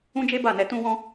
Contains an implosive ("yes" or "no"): no